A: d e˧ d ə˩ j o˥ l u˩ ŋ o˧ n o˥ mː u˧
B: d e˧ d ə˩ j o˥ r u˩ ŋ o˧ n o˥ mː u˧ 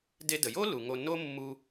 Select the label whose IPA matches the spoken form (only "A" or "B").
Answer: A